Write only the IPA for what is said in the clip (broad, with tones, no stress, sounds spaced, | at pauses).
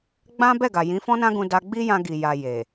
ɡ͡b ã˦ b ɛ˦˨ ɡ a˨ j ĩ˨˦ f ɔ̃˦ n ã˦ ɡ ũ˧ d a˧ ɡ͡b i˦ j ã˧ ɡ i˨ j a˨ j e˨